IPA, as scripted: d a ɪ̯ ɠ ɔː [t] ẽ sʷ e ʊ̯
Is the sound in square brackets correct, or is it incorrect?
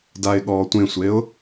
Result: incorrect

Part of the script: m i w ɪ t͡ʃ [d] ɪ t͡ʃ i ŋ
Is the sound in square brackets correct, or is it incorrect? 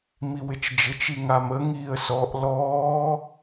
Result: incorrect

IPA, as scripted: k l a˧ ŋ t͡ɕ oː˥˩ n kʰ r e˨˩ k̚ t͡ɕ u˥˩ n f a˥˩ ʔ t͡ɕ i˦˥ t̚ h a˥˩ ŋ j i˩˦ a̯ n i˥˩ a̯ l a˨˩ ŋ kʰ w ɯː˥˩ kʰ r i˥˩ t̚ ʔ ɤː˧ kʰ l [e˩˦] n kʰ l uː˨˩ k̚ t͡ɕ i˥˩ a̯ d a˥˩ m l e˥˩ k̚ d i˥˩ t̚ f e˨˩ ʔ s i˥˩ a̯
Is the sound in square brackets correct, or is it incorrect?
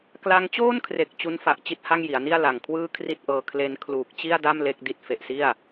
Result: incorrect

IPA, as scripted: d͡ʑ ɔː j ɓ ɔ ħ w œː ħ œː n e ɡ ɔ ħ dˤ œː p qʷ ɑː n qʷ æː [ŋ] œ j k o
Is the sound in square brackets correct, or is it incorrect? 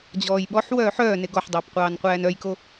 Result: incorrect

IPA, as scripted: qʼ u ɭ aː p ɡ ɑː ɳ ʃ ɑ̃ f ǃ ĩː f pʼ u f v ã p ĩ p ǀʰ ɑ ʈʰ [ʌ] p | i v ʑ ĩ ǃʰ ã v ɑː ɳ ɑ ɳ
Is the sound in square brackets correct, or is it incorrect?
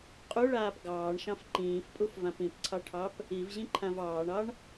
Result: incorrect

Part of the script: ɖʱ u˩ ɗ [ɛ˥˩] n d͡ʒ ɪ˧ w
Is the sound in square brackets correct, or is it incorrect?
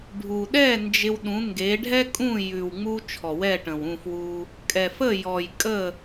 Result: correct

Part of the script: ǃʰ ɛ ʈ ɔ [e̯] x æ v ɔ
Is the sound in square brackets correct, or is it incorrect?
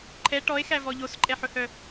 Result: correct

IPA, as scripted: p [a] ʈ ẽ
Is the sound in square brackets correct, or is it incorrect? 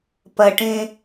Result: incorrect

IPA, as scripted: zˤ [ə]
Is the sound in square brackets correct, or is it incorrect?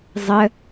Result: correct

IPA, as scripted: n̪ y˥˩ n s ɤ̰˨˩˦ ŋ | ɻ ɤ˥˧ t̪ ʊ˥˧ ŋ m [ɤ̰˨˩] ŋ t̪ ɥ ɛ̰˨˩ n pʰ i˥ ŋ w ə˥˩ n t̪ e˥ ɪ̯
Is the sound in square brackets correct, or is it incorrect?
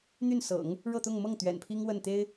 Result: incorrect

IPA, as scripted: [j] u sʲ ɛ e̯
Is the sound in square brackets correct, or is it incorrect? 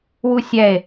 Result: incorrect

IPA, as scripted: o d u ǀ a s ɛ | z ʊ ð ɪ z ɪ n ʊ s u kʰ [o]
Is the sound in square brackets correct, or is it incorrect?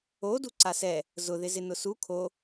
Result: correct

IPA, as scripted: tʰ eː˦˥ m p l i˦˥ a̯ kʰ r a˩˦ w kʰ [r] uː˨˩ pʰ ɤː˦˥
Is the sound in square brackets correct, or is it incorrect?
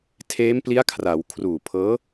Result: correct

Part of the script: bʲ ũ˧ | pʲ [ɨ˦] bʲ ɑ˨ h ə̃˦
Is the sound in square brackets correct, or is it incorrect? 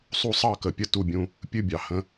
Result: correct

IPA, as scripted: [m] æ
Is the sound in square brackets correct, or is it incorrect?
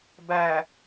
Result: incorrect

